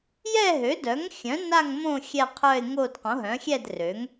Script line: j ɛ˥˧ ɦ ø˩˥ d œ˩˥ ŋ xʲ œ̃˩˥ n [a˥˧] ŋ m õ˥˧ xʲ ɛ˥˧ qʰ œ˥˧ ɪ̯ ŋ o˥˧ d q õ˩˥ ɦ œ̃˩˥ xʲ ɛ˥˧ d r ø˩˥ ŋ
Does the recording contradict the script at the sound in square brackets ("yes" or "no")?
no